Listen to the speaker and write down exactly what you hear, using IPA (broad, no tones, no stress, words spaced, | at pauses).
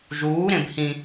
ʒuː ɾẽbhĩ